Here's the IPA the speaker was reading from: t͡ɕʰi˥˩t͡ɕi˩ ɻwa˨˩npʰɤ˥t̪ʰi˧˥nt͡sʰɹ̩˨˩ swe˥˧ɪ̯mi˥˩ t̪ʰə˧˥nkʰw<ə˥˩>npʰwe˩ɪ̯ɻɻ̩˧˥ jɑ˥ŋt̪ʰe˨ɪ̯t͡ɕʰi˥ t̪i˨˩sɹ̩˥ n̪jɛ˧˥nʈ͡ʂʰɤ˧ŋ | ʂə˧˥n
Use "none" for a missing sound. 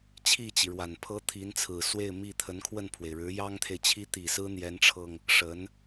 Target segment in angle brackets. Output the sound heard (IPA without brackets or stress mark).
ə˥˩